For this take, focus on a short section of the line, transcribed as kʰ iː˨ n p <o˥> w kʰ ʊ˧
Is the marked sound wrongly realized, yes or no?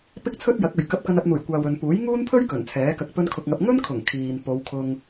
yes